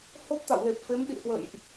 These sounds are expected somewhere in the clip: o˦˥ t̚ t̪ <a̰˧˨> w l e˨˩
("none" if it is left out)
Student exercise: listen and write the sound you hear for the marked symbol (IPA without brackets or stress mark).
a̰˧˨